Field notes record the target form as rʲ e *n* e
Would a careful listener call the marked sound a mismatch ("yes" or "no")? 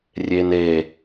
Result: no